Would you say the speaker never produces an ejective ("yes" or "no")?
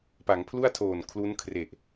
yes